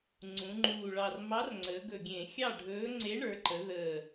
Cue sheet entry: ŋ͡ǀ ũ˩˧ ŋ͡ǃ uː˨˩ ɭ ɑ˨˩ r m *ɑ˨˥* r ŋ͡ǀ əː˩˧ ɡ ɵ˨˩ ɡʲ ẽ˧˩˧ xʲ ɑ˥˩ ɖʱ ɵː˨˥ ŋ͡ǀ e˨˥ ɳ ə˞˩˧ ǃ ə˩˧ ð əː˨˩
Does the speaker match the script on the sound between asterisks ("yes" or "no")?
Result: yes